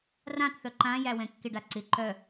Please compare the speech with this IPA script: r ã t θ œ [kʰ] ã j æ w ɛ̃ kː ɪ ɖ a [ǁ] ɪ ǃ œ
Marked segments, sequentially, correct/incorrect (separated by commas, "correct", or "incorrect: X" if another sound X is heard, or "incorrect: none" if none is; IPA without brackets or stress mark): incorrect: ǃ, incorrect: ǀ